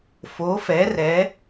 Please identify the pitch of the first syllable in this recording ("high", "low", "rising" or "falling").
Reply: rising